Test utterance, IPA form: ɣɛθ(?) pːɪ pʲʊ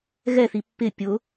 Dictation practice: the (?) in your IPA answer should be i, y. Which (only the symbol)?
i